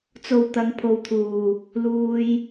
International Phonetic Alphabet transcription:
t͡so˨w t̪ɐ˨˧ŋpʰo˨˧wt̪ʰuː˨ | luː˧j

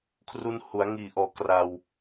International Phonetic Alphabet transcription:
kʰru˧nhu˩˦a̯ŋiː˨˩ʔɔː˨˩ kra˧w

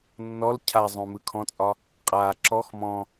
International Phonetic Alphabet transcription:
nːɔl cʰazˤõmɯ kʰɔ̃t͡sʼɒ | qʼa ǁɔx mɔ̃

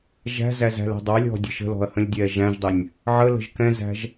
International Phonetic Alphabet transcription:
ʒæ̤zæ zæ̤lɛ̤dˤɑlʲɔ̤ dʲə̤ʃə̤lɔ̤ɐ̯ hə̃lʲdʲɛʒæ̃ʒdˤɪnʲ | ʕələ̤ʒ kɛ̃zæ̤ʒ

